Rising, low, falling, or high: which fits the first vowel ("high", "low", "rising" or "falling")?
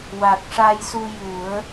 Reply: low